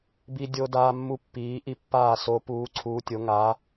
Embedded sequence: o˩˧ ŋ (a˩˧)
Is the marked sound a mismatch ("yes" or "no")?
no